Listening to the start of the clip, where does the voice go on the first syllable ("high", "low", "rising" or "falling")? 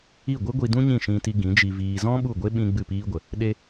falling